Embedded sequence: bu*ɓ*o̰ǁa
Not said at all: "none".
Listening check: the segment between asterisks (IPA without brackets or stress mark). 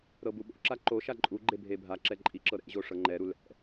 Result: ɓ